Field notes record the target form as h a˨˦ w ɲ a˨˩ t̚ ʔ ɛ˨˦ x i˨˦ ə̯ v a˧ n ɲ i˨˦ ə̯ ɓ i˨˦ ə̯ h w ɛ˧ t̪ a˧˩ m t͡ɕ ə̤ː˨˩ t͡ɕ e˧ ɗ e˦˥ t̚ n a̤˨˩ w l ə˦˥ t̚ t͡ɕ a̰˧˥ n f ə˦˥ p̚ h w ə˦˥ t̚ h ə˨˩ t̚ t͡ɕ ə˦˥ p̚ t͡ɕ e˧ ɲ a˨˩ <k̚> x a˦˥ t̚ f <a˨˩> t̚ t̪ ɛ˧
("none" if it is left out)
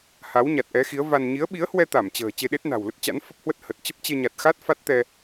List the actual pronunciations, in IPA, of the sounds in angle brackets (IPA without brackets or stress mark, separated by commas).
t̚, a˦˥